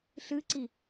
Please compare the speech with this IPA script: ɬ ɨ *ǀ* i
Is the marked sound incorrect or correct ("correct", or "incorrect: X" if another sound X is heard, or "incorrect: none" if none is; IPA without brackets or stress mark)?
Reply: correct